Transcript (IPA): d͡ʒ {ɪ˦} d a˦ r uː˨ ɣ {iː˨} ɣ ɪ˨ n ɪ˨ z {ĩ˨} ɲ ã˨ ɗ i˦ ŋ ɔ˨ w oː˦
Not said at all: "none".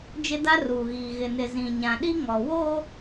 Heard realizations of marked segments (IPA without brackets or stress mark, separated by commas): ɪ˦, iː˨, ĩ˨